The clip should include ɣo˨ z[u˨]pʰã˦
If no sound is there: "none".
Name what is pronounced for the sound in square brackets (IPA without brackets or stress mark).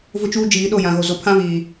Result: o˨